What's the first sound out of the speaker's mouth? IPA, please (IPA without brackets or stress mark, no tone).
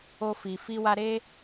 o